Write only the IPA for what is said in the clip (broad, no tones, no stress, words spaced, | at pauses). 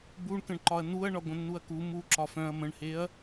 buɳkə̃ɳǃɒɐ̯ nuɐ̯ɳɒ ɡʷə̃nːuɐ̯ku mu ǁɒfœ̃ɐ̯ mə̃ɳheɐ̯